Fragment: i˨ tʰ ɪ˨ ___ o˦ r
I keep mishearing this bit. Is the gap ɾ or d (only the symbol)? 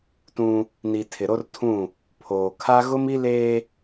ɾ